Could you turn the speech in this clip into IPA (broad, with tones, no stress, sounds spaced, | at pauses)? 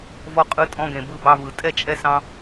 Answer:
v ɔ˧ qʼ ɯ˧ tʼ ɔ̃˧ ɡ ẽ˨ b ɯ˧ b ɑ˧ v ɯ˨ tʼ ɛ˦˨ t͡ʃʼ ɛ˧ s ɑ̃˧